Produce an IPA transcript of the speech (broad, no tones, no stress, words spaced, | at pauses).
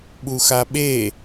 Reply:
ɓuxaɓe